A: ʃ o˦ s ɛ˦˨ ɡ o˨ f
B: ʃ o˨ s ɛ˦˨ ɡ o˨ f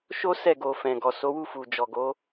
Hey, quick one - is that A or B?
A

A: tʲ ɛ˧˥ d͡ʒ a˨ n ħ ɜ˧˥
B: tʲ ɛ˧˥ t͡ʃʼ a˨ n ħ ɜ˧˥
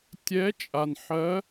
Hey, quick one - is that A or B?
B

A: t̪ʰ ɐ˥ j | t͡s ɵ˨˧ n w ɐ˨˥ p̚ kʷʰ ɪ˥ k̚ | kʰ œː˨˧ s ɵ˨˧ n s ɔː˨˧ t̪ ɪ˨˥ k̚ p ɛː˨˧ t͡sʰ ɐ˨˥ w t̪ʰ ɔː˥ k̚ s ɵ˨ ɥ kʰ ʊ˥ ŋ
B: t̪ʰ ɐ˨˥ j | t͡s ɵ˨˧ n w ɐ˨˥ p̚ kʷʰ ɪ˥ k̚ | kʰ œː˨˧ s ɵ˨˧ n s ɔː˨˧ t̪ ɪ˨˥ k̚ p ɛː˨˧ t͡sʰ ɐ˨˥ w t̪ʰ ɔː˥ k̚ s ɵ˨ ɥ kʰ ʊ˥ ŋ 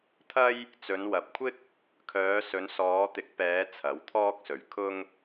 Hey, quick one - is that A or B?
A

